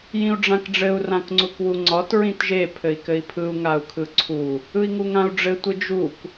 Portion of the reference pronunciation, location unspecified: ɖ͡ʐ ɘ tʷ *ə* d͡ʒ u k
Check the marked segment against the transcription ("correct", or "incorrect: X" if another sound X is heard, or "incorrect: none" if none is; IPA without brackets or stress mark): incorrect: ɯ